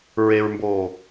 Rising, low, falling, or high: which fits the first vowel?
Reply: low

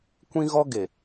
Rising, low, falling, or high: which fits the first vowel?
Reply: high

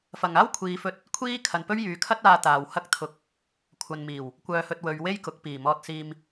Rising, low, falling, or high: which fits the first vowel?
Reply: low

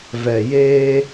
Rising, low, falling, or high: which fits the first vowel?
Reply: low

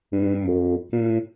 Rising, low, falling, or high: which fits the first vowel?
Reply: low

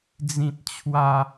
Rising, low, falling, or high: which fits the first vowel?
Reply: high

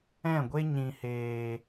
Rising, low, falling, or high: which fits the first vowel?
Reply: falling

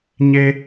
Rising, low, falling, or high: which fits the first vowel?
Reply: high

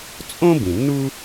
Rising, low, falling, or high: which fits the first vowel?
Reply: high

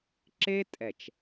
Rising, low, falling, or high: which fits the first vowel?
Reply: high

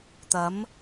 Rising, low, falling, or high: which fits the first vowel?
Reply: rising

